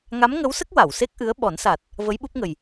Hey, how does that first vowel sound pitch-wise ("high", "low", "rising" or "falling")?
rising